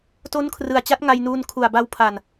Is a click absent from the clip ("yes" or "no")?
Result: yes